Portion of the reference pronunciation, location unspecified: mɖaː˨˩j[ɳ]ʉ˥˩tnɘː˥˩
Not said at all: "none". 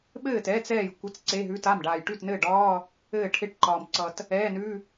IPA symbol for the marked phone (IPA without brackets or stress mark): ʈ